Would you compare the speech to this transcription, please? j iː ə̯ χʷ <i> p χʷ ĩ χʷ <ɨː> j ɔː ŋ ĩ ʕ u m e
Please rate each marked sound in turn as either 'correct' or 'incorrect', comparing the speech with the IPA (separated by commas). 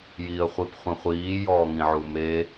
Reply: correct, incorrect